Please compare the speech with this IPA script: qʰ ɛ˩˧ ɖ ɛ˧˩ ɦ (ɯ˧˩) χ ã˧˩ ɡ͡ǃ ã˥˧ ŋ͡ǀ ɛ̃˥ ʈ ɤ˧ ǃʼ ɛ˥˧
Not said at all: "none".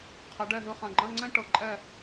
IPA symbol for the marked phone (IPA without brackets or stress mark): ɯ˧˩